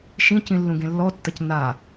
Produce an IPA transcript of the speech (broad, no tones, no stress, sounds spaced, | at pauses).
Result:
ʃ ĩ c ĩ lː ũ ɡ ẽ lː ɔ tː ɐ c n a